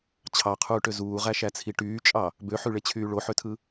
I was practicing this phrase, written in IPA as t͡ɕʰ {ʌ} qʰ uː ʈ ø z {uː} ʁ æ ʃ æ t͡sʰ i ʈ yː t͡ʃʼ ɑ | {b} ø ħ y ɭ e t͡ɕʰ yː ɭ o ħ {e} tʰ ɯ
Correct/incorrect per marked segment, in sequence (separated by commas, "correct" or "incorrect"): incorrect, correct, correct, incorrect